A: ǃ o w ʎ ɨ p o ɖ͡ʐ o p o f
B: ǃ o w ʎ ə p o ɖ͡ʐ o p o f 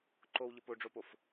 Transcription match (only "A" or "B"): B